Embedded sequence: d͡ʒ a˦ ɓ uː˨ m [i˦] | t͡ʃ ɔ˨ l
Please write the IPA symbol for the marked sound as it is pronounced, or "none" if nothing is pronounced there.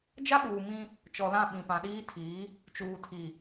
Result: ĩ˦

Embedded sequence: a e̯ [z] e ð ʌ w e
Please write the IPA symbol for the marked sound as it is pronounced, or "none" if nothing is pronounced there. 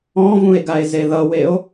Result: z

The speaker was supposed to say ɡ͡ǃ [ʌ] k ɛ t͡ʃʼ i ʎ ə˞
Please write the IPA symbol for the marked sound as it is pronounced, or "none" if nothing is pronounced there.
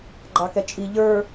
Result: ɑ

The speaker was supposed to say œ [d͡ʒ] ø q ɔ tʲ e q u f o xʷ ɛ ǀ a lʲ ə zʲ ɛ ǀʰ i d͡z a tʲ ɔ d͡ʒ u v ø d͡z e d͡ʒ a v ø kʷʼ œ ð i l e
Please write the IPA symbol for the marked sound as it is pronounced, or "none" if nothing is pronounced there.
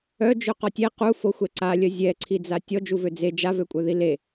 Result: d͡ʒ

